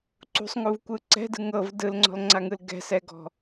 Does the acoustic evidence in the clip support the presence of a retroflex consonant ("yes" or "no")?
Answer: no